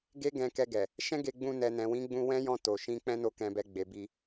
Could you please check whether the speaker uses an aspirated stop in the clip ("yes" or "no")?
no